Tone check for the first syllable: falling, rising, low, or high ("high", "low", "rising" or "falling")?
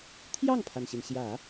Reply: falling